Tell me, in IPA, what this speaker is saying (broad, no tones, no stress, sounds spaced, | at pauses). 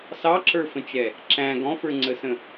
s ɑ ǁ ə˞ f ə̃ t͡ʃ ɛ | ǁ æ̃ ɡ ɔ̃ f ə˞ ŋ͡ǀ ə s ə̃